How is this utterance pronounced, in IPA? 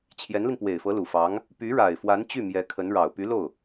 t͡ɕʰ j ɛ˧˥ n l i˧ n p w e˨˩ ɪ̯ f ɤ˧˥ l u˨˩ f ɑ˧˥ ŋ | p y˧˥ ɻ a˨˩ ɪ̯ f w a˧˥ n t͡ɕ y˥˩ m j ɛ˧˥ kʰ ə˧˥ n ɻ ɑ˨˩ ʊ̯ p y˧˥ l o˥˩ ʊ̯

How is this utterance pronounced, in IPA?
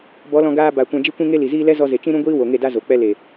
b ɔ˨˦ l ɔ̃˧ ɡ aː˧ b a˨ kʷ ã˧ d͡ʒ i˦ kʷ ĩ˦ ŋ e˦ l i˨ z iː˦ l ɛ˦ z ɔ˧ z e˨ t͡ʃ ĩ˦ ɾ ũ˦ ɡʷ iː˦ w o˨ ŋ e˦˨ d a˦ z o˨ k͡p ɛ˦ l e˨

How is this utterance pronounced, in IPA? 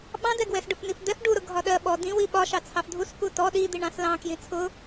ɓ ɑ̃ d ɛ ɡ w ɛ s ɖ ʊ f n i f d̪ ɛ f ɖ u ɾ ʊ ɡʱ ɒ ɗ ɜ ɓ ɔ d ĩ w i ɓ ɒ ʃ ɑ t͡sʰ ɑ f dʱ u s k u t ɔ ɗ i d̪ i ɳ ɑ̃ s l ɑ̃ k j ĩ t͡sʰ ʊ

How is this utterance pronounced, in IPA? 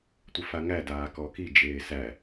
tʷ ə f a ŋ æ d aː k ɔ k i d͡ʒ eː s æ

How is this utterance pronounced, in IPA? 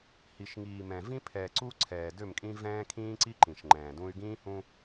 h i˨ ʃ ŋ iː˨ m ɛ̃˨ v ĩ˦ pʰ ɛː˨ ǀ u˦ ǀʰ ɛː˨ d ø˦˨ m kʼ ĩ˦ v ɛ̃ː˦ kʰ ĩː˦ ǀ i˦ ǃ ĩ˨ ʃ ŋ͡ǃ ɛ̃ː˨ d ũ˦ y̯ ɡ ĩː˦ h ũ˦

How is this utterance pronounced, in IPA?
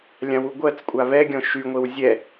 lʲ ã w u ɡʷ ɜ t͡s kʷʼ a β ɛ ɡʲ ɔ̃ ʃ y ŋʷ e w zʲ ɛ

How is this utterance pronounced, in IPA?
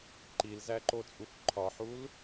ǃ i l z æ ǃ o t͡sʼ u f ǃʰ ɒ ħ u l

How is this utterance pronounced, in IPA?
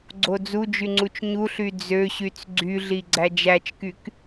ɡ͡ǀ o d͡z u d͡ʒ y ŋ͡ǀ u t͡ʃ ɲ u ɬ y d͡z ø ɕ y t͡s ɡ͡ǀ y ɮ i ɡ͡ǀ æ d͡ʒ æ t͡ʃ k y k

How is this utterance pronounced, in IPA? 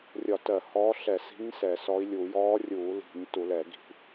rʲ ɒ˧˩˧ t ɜ˧˩˧ h ɔ˧˥ ɬ ɛ˧˩˧ s i̤˧˥ ɲ s ɛ˧˩˧ s ɔ˧˥ i̯ lʲ u˧˩˧ j ɔː˧˥ rʲ uː˧˩˧ l i̤˧˩˧ ɲ t u˧˩˧ l ɛ˧˩˧ ɡ i̤˧˩˧

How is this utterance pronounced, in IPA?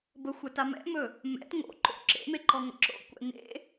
b ə xʷ ɛ t a m ɛ̰ m ɵ | m ɛ̰ t ŋ o̰ ǃ o̰ ǁ ḛ m e ǃ ɔ ŋ ə̰ ǁ o̰ kʷ ɛ̰ n ḛ

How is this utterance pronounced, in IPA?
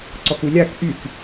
ǀ ɔ k u lʲ a k ʔ y k

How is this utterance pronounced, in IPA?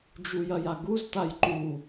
d͡ʒ u j ɐ j a ɡ u z t a j ǃ u

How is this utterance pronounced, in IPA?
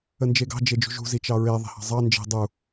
ə n d͡ʒ e ɡ ɑ̤ d͡ʒ e d͡ʒ ṳ ʒ ṳ z i t͡ʃ ɑ ɹ e ðˤ e̤ h ɑ̤ zˤ ɑ n d͡ʒ e̤ dˤ u

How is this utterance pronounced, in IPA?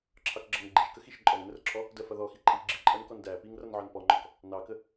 ǁʰ ɑ k ɡ͡ǁ ʌ ŋ ɡ͡ǃ i ʃ k ə x i ʃ ǃʼ ɔ ŋ n ə r ǁʰ ɔ | d ɜ f ʌ ð ɔ x i ǃʼ i ɡ͡ǁ i ǃʼ ɜ n k ɔ n d æ p i ŋ r ʌ n ʕ ɒ n p ɔ ŋ͡ǃ ɔ k | n ɑ k ə

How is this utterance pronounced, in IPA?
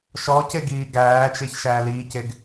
ʃ ɔ c e ɡ iː ɡ æː t͡ʃ e ç ʃ æː l iː c e ɡ

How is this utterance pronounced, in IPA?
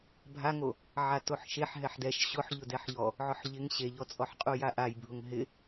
bʱ a ŋ o | ʕ a t o ħ ʃ e ħ ɦ ɛ ħ d ɛ ʃ ɕ ʊ ħ ʎ ʊ d ɛ ħ ʎ ɔ | ʕ ʊ ħ ʎ ɪ ŋ ɕ e ʎ ɔ t͡sʼ ɔ ħ qʼ u j a ʔ a j bʱ ʊ ŋ ɦ ɪ

